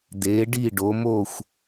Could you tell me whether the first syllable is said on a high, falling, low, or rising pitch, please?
rising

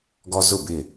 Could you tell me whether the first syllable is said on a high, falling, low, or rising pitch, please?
high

